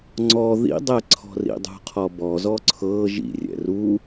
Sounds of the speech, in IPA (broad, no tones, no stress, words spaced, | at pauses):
ŋ͡ǀɔ ðḭdˤɛǀʰɔ̤rḭ dˤṳqʰɔbɔzɔ ǀʰɤ ʒḭrʲɛ̰ ru